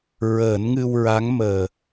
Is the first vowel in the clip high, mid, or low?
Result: mid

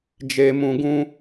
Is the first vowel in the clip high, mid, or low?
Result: mid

